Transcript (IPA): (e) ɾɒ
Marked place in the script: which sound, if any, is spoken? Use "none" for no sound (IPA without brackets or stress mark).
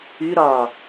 y